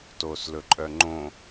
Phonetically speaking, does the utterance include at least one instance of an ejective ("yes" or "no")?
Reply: yes